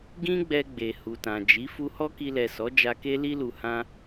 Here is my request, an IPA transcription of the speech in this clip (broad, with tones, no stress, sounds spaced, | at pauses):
ɡ ĩ˦ ɡ͡b ɛ˧ ɡ͡b e˨ h u˨ t ã˨ d͡ʒ i˨˦ f u˧ h ɔ˦ k i˧ l ɛ˨ s ɔ˨˦ d͡ʒ a˧ k e˦ l i˦ l u˧ h ã˦